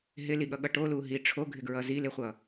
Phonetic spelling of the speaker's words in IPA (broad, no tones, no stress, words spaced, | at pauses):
ɦɪliɠʌɠʌ ʈoluɦi ʈ͡ʂʰoɡʱɪɡɹʌ zilɪχʷʌ